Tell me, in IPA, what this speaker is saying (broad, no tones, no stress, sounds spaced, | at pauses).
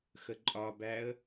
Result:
x ə ǃʼ ɒ b æ ə̯